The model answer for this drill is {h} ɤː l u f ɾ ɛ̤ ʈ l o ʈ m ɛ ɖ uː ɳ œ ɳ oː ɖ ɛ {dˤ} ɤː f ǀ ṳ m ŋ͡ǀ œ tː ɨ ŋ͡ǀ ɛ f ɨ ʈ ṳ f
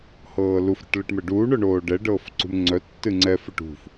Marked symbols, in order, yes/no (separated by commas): yes, no